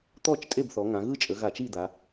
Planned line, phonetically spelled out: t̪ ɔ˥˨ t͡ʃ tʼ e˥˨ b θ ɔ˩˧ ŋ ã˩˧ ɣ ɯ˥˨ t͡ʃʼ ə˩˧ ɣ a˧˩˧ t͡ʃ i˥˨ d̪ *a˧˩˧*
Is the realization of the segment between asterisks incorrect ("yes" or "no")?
yes